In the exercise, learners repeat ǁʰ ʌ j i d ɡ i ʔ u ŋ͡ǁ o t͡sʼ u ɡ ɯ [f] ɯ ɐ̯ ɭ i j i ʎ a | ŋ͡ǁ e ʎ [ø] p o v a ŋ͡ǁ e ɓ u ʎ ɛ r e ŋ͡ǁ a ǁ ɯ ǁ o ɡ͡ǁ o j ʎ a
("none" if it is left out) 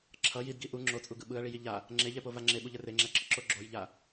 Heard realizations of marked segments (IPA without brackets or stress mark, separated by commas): ɓ, ɛ